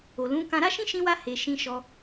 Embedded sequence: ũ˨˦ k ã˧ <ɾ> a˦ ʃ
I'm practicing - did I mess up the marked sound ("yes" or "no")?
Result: no